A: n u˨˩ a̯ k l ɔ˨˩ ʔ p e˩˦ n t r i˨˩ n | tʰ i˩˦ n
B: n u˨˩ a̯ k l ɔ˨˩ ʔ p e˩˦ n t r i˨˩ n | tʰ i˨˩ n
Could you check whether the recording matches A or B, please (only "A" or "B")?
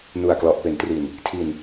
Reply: B